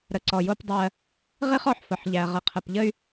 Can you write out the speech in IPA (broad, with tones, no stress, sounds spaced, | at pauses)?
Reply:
ɾ ə˨ ǀ ɔ˨ j o˦ p dˤ ɜ˦ | ʁ i˦ χ ɔ˨ ħ f ə˨ ħ ʎ æ˨ ʁ ə˨ qʰ ə˨ p ʎ ə˦ y̯